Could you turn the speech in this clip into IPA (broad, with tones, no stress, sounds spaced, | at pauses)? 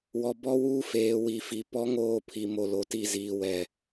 w ɔ˨ b ɔ˦ w uː˦ f eː˨ w i˨ f i˨ p ɔ˦ ŋ oː˦˨ pʰ i˨ m o˨ l o˨ t i˦˨ z iː˨ w ɛ˨